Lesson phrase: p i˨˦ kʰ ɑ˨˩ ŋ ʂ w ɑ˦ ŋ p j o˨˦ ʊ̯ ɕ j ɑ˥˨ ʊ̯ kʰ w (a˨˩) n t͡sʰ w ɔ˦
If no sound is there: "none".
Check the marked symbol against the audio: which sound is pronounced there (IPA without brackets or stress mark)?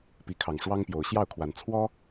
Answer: a˨˩